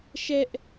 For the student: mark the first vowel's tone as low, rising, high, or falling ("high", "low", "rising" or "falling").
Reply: high